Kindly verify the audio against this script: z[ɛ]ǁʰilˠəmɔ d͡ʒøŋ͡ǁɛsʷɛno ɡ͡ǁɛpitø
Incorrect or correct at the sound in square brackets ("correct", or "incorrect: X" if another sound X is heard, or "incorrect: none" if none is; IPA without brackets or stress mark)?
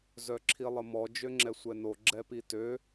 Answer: incorrect: œ